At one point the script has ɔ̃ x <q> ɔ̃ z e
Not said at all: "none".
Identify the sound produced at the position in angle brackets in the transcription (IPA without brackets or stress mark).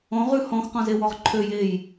q